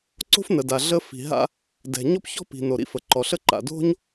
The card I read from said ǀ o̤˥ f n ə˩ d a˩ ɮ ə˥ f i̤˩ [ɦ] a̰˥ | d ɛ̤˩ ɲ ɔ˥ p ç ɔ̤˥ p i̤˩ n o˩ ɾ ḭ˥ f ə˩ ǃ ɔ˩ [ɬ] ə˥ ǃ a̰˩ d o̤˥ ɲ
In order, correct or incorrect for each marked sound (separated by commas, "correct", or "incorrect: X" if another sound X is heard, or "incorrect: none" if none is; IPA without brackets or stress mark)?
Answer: correct, correct